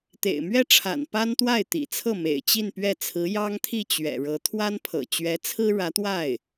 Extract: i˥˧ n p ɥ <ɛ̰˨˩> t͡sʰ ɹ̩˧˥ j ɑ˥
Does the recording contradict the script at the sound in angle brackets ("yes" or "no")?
yes